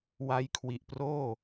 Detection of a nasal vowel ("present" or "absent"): absent